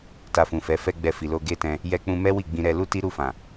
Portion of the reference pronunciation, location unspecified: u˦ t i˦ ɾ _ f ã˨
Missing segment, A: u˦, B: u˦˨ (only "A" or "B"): B